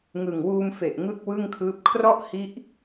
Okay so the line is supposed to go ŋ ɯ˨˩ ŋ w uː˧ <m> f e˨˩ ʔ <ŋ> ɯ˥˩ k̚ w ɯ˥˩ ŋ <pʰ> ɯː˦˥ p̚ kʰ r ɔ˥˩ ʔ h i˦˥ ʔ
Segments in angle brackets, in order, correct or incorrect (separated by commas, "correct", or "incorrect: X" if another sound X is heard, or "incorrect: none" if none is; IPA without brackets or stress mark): correct, correct, incorrect: kʰ